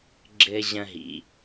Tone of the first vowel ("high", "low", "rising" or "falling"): high